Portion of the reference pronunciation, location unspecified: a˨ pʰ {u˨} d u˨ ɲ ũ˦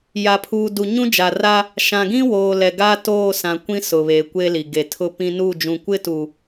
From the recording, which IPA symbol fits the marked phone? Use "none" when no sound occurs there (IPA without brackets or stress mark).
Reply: uː˨